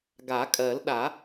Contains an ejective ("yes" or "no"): yes